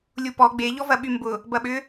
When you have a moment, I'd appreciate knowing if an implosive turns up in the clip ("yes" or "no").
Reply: yes